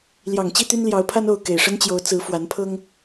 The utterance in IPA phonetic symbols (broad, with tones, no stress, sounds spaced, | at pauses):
l j ɑ˨˩ ŋ t͡ɕ i˥˨ t̪ y˦ n l j ɑ˨˦ ʊ̯ pʰ a˦ n o˥˨ ʊ̯ k e˨˩ ɪ̯ ʂ ə˦ n t͡ɕ j o˨˦ ʊ̯ t͡s ɹ̩˨˦ f w a˨˦ n pʰ ɤ˦ ŋ